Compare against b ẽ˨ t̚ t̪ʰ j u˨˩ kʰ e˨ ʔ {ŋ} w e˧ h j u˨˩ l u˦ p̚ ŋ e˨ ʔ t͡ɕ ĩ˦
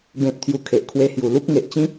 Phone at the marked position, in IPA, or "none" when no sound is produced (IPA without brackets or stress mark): kʰ